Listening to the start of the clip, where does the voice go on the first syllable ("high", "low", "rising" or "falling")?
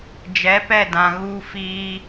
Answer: rising